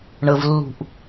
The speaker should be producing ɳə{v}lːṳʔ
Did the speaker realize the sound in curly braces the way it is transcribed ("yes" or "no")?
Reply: yes